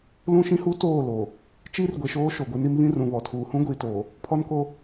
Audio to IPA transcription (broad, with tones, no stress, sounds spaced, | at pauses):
l ũ˦ ʃ ĩ˦ h u˦ t oː˦˨ l o˨ | t͡ʃ iː˦ r ɡʷ e˨ ʃ oː˦ ʃ o˨ ɡʷ e˦ n i˦ m β ĩ˦ r ũ˨ β ɔ˨ tʰ uː˨ h ũ˦ ɡʷ iː˨ t oː˨ | pʰ ɔ˦ n k o˦